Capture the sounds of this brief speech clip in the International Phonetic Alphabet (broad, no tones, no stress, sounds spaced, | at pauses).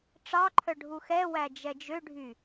ʈ͡ʂ ɑ ǃʰ œ ɖʱ u x ɛ w æ d͡ʒ ɛ d͡ʒ ø ɖʱ y